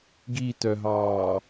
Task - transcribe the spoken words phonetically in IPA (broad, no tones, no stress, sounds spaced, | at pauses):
ɡ i t œ ɦ ɑː